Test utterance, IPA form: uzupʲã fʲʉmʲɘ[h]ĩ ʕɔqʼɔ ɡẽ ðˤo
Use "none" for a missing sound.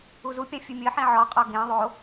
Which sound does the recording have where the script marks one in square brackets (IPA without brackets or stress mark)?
ħ